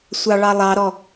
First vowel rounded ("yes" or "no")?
no